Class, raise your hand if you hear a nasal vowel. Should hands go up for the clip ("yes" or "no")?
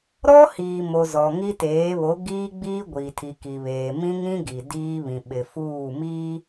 yes